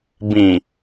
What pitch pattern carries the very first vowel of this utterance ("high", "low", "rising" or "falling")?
low